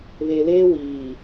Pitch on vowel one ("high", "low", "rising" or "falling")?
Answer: low